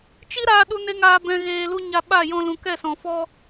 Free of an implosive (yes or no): no